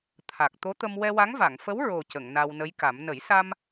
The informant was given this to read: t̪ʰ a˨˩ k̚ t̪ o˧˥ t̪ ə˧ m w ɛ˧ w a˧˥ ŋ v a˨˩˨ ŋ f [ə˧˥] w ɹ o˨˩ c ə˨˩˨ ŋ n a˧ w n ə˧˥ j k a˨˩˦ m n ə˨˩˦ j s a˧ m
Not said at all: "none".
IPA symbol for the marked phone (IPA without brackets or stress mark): ə˧˥